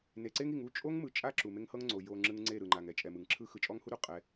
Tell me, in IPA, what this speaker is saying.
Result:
ne˨ǀe˦ŋi˨ŋ u˦˨t͡ʃʼo˦ŋ mɯ˨t͡ʃʼa˦ ǁu˨me˦ŋhɤ˦ŋŋ͡ǀo˨ jo˨ŋ͡ǁɯ˨ŋ ŋ͡ǀe˦˨ɾɯ˨ŋ͡ǃa˨ŋɛ˦ t͡ʃʼɛ˨mɯ˨ŋǁʰɯ˦ xɯ˨t͡ʃʼɔ˦ŋhu˦ɾu˨ qʼɛ˦

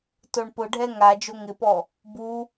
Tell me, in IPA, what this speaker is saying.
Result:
toɳpʊɖʱɛ ŋa d͡ʒoŋɪpɔ | bu

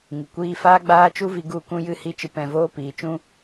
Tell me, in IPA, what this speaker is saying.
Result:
ŋɨ˨kʷiː˧ faː˦ɡ͡baː˦t͡ʃu˦vi˧ ɡu˦˨kũ˦ jɨ˦˨hi˦˨t͡ʃɨ˧ pɛ̃˧ voː˦piː˨t͡ʃũ˦

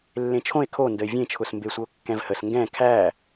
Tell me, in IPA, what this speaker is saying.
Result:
lːẽt͡ʃʰõe̯ kʰo ndəe̯vʲẽt͡ʃʰʊs mbesʷəo̯kːɛ̃vhəs ŋɡɛ̃ kʰæ

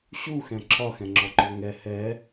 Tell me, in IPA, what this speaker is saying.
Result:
ɕuxɛ̃ ǁʰɒxɛ̃ŋ͡ǁɔǃɔ ŋɛ hɛ

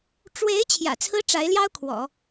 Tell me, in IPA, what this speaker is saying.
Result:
ʈ͡ʂwe˧˥ɪ̯ t͡ɕʰjä̰˨˩t͡sʰɹ̩˥ʈ͡ʂa˧˥ɪ̯ljɑ˥ʊ̯ kʰwɔ̰˨˩˦

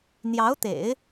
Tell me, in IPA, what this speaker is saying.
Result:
n̪jɑ˧˥ʊ̯t̪ḛ˨˩˦ɪ̯

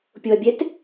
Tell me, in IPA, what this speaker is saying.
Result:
pʲoɐ̯bʲɛt

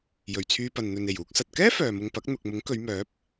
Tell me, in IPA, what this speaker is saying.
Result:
jɵ˨˩ɥt͡sʰyː˧pɐ˨n n̪ɵ˨ne˨˩j uː˧k̚sɐ˨t̚ kɛː˥ fœː˨mʊ˧ŋpɐ˨˥k̚ n̪ʊ˨k̚mʊ˨˥ŋ kɵ˨˧ɥmœː˨˥p̚

